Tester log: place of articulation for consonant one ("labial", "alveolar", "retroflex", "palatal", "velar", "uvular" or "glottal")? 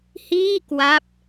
glottal